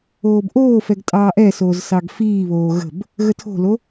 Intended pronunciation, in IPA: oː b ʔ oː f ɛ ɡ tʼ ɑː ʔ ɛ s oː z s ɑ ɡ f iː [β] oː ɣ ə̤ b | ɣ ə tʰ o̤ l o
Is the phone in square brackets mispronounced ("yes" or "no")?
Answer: no